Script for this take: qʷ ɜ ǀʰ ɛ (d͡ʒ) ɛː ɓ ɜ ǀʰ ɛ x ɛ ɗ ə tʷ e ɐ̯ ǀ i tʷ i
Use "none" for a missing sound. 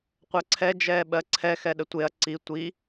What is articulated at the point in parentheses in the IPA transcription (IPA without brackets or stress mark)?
d͡ʒ